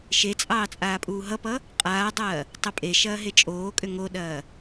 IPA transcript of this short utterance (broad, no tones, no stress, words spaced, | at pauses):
ʃet͡sʼɑː t͡sʼaːpʼuːɦʌpʌ | qʼaːdˤɐː | tˤɐpʼeʃɐː ɦet͡ʃʼoːkʼʏ ŋoɗɐː